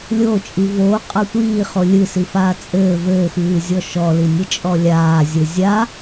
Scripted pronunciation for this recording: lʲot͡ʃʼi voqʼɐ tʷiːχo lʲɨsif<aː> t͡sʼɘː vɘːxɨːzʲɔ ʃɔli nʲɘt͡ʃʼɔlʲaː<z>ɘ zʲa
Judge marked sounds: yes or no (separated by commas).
yes, no